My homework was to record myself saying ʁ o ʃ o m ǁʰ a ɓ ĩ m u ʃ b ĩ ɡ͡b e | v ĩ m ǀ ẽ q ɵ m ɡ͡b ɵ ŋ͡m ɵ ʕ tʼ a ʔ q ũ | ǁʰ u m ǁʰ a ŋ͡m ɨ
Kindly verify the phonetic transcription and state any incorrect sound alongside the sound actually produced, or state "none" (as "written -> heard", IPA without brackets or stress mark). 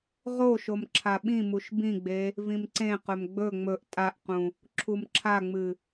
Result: ʕ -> ʔ